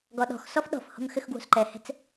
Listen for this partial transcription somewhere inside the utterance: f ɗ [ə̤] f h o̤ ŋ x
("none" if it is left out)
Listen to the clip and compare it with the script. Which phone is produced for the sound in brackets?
ɔ̤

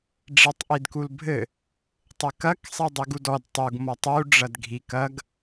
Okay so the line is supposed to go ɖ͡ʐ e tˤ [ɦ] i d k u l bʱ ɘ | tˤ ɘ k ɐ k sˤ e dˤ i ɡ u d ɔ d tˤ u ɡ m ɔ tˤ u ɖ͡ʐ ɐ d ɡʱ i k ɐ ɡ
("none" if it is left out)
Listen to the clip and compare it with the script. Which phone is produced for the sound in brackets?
ʔ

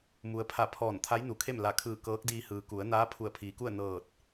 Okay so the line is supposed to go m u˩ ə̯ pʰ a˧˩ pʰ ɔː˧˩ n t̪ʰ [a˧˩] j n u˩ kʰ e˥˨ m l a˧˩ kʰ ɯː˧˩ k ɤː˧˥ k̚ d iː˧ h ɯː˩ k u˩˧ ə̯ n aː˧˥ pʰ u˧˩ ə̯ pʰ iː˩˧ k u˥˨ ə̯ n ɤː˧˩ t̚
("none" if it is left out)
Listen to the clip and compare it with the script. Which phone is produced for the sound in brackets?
a˧˥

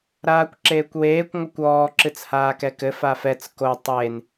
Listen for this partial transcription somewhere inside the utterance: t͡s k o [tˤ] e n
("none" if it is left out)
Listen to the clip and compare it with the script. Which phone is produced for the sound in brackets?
tˤ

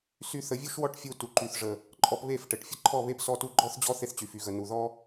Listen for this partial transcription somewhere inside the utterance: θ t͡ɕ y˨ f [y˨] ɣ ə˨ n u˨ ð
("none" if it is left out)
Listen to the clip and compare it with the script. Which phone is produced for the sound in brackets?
y˧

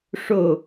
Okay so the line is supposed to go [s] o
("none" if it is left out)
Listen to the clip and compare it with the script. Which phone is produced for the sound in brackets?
ʂ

